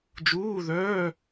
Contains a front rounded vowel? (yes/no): yes